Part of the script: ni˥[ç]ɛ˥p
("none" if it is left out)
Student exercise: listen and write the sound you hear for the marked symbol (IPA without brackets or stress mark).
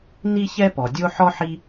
ç